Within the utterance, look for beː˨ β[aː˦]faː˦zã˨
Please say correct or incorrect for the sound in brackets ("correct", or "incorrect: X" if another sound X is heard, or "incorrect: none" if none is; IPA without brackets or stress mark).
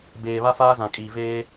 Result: incorrect: a˦